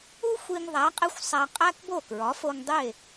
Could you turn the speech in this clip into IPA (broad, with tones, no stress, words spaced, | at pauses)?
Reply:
u˥ xʷi˧ŋðˤæ˩˥ qʼe˥xʷsˤæ˧ qʼæ˥kbo˥˩ kɹɒ˩˥fo˧ŋdˤe˥˩